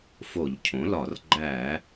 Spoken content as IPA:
f o˧˩˧ ʎ cʰ õ˩˥ l ɒ˧˩˧ r ɡ͡ǃ æ˧˩˧

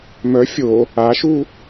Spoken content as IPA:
m œ fʲ o | a ʃ u

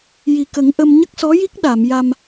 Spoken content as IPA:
j i˨˩ k ə˨˩˦ ŋ ʔ ə˧ m ɲ ə˦˥ k̚ s ɔ˧˥ j i˦˥ k̚ ɗ a˨˩˨ m j a˧ m

